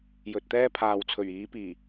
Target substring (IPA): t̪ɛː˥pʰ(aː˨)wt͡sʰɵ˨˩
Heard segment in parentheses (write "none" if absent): aː˨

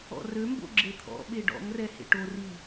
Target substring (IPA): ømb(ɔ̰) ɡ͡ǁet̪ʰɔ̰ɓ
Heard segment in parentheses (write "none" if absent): o̰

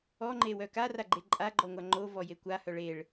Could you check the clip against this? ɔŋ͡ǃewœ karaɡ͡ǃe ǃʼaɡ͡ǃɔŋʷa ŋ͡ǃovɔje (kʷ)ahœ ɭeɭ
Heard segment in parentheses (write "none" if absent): kʷ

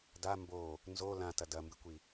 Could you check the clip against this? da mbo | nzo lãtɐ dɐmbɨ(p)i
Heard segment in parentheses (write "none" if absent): kʷ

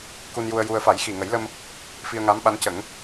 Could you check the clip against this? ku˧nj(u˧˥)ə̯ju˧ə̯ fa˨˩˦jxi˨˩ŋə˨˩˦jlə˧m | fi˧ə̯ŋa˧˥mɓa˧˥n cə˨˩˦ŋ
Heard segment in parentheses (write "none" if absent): u˧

